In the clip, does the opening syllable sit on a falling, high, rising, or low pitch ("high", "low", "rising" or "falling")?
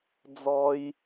high